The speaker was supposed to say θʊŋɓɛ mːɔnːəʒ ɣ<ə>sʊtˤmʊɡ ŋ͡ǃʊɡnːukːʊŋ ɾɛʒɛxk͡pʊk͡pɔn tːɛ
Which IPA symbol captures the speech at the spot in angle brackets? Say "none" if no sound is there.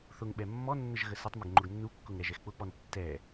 ə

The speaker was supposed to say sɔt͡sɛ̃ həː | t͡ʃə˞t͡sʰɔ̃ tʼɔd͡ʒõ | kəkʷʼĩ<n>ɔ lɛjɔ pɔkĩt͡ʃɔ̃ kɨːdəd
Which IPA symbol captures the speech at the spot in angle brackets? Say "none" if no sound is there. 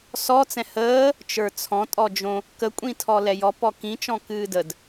tʰ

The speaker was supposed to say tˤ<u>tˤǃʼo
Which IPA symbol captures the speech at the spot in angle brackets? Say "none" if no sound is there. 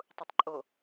u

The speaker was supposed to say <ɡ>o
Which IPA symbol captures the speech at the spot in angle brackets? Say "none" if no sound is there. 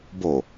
b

